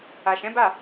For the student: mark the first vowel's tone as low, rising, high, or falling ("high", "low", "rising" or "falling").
low